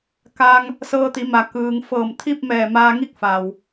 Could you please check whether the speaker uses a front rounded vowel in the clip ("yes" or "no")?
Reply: no